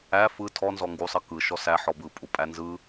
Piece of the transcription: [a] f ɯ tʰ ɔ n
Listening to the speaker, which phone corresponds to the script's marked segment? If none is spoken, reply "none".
æ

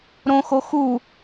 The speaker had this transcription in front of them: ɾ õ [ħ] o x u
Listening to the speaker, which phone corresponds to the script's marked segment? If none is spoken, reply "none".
x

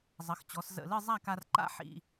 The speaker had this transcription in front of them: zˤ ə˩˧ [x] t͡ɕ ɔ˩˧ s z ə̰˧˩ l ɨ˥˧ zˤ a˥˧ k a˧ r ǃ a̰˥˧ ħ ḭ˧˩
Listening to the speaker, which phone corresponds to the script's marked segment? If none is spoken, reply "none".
x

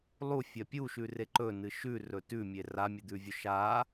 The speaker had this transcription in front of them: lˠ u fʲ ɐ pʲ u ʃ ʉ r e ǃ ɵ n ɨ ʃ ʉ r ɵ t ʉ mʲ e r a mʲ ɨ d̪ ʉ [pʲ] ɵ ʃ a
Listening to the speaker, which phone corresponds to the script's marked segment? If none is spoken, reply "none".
vʲ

